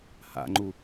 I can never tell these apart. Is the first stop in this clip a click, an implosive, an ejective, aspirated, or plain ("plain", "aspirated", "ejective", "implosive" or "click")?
click